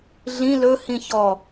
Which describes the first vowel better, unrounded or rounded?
unrounded